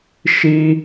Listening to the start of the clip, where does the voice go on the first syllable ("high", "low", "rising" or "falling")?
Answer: high